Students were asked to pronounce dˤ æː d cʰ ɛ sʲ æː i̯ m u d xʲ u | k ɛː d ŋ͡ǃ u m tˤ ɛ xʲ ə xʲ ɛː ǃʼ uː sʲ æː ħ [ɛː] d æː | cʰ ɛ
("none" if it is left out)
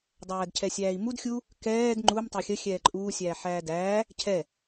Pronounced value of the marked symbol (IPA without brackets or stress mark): æː